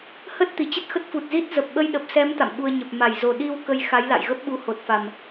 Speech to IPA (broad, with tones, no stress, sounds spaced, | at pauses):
h ə˦˥ t̚ t̪ i˧˩ t͡ɕ ə˦˥ t̚ x ə˦˥ t̚ f u˨˩ t̚ z i˦˥ t̚ z ə˨˩ p̚ ɓ ə˧ j ɗ ə˨˩ p̚ s ɛ˨˦ m t̪ a̰˧˨ m ɓ u˧ ə̯ ɲ ə˨˩ p̚ m a˧˩ j z o˨˩ ɗ i˧ w k ə˧ j x a˨˦ j l a̰˧˨ j ɣ ə˦˥ p̚ ɓ u˨˦ h o˨˩ t̚ f a˨˩ m